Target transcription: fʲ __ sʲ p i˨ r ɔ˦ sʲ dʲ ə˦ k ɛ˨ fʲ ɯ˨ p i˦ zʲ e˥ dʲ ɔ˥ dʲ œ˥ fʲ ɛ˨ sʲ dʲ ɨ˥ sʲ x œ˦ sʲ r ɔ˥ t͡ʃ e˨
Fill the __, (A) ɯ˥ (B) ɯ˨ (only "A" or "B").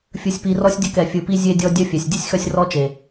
B